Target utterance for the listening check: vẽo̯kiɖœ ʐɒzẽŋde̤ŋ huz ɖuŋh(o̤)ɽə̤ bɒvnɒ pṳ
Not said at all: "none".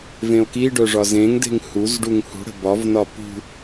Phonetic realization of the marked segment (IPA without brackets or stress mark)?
ṳ